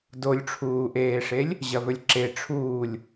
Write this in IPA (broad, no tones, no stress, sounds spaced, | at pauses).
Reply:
d o lʲ ʈ͡ʂʰ uː ʔ eː ʂ e lʲ | ʑ ɐ v ɵ lʲ ǁ e ʈ͡ʂʰ uː lʲ